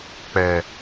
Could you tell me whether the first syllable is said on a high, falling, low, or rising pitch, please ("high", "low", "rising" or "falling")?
low